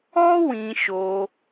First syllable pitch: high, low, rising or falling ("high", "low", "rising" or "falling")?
high